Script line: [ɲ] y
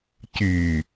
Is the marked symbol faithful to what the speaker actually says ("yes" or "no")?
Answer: no